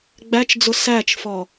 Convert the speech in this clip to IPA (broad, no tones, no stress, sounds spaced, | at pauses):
ɡ͡b æ t͡ʃ d͡z ʊ s æ t͡ʃ f ɔ